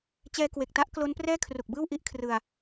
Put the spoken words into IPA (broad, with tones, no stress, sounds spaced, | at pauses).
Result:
t͡ɕ ɛː˧ k w e˨˩ k̚ t a˦˥ ʔ k l o˦˥ n p r ɛː˥˩ kʰ r u˨˩ k̚ b ɯː˥˩ w ʔ i˦˥ ʔ kʰ r ɯ˧ a̯